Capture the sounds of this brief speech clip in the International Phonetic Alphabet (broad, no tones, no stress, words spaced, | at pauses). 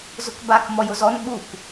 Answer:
zʊkbak mɔjʊzɔn ɓuk